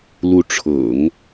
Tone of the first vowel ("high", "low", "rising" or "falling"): rising